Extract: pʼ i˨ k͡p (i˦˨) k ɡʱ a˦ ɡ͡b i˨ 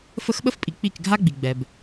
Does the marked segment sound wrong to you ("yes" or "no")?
no